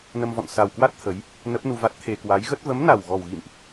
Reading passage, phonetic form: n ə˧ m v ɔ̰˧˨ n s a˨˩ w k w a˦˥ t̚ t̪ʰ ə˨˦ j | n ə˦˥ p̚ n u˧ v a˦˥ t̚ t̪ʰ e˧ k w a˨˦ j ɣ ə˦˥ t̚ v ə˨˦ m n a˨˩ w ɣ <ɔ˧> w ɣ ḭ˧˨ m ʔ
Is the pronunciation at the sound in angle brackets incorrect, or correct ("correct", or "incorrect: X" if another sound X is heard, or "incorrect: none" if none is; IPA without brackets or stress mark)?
incorrect: ɔ˨˩